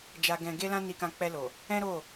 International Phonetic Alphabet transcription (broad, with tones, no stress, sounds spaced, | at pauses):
d͡ʒ a˧ ɡ ɛ̃˧ ɡ e˦ l ã˦ n i˧ k ã˧ k͡p ɛ˧ l o˨ | ɛ̃˦ ɾ o˦˨